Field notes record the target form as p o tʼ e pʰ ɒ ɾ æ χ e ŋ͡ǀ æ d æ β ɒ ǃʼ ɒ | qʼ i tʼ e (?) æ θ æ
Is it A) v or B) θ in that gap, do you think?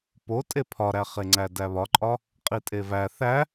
A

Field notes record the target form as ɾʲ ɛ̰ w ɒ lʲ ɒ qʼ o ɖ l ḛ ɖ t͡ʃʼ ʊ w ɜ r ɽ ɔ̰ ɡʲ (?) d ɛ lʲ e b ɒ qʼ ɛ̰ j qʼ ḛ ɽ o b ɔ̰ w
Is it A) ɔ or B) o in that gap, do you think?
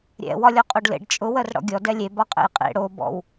A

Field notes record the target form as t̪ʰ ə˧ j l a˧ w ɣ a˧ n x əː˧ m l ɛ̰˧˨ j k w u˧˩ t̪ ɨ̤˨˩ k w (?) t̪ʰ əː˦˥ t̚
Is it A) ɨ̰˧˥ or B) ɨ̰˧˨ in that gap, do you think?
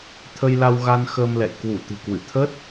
B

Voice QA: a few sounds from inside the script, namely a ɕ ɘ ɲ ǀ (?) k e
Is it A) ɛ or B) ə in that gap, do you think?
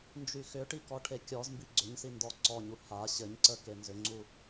B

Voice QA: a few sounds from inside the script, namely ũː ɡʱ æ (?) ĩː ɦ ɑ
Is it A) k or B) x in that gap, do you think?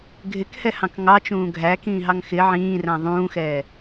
A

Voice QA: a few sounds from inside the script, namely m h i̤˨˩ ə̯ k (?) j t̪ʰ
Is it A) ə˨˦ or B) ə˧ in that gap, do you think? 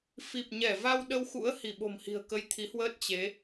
B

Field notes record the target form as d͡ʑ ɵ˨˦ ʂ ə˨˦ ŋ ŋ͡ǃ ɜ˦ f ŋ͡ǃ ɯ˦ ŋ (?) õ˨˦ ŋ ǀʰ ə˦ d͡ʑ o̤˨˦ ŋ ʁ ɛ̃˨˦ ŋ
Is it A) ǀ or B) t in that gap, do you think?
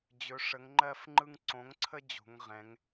A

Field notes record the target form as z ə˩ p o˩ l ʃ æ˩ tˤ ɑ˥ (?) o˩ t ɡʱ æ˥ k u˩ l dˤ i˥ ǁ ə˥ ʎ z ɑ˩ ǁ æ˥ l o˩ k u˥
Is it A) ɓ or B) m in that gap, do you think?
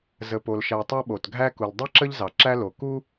A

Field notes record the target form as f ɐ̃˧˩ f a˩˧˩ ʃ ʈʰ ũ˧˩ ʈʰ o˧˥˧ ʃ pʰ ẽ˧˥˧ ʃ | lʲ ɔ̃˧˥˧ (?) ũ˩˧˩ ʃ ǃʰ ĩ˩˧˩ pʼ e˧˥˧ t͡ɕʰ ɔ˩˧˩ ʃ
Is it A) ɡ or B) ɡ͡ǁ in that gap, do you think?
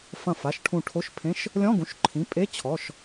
A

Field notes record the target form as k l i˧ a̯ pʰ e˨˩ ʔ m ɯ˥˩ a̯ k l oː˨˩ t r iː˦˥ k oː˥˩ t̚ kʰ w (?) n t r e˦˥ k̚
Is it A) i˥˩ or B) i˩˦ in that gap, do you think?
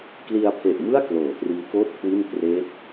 A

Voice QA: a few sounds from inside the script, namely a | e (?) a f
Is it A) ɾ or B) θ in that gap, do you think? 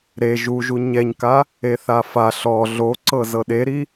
B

